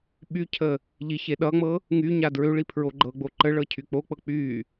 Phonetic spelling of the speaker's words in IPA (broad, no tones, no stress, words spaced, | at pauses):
ɓycʰə | ʎiçe ɗʌŋ͡mɤ | ŋy ɲadɹøɭi pʰɹoɡ͡ǃɤɡ͡bo ǃə ɭɤcʰyk͡pok͡pɤ k͡py